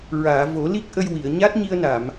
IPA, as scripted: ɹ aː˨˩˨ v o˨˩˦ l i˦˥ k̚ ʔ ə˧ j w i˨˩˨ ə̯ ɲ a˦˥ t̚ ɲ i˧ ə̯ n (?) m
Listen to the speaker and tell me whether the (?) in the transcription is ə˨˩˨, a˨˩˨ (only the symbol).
a˨˩˨